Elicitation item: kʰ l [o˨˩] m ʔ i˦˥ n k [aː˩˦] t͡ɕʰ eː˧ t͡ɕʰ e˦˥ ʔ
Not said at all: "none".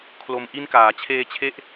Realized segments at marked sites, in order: o˧, aː˩˦

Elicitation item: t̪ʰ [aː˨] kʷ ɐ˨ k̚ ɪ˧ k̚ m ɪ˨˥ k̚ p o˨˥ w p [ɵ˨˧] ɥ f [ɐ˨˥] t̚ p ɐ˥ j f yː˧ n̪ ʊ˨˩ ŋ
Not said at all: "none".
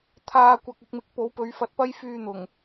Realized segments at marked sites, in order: aː˨, ɵ˨˧, ɐ˨˥

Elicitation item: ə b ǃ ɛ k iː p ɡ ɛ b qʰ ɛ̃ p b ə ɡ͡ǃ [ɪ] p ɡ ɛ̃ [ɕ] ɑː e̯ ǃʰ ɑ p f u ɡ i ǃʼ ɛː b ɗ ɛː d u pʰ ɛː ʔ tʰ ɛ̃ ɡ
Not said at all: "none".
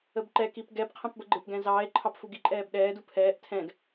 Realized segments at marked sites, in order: ɪ, z

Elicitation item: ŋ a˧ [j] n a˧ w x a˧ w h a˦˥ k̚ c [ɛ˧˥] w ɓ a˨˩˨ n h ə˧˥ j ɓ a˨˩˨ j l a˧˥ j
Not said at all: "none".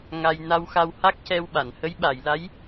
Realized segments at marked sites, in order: j, ɛ˧

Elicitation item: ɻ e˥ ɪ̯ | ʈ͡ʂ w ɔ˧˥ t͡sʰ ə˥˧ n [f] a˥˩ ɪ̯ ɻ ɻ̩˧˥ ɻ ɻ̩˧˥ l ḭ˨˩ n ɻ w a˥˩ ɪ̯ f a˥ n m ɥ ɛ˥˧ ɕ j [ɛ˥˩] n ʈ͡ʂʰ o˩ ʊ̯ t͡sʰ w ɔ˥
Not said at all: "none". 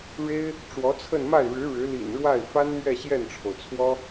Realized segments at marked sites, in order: m, ɛ˥˩

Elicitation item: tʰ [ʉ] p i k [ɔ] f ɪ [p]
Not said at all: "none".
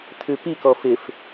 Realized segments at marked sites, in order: ʉ, ɔ, f

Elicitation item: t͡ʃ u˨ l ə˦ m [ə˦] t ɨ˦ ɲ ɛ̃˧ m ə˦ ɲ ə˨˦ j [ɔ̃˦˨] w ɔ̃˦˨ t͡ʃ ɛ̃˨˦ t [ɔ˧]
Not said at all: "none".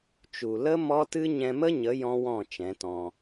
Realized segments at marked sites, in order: ɔ˦, ɔ̃˦, ɔ̃˧

